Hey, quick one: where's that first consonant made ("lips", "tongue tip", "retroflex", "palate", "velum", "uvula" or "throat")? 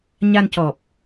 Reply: palate